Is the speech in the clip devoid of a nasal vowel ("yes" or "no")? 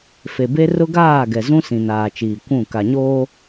no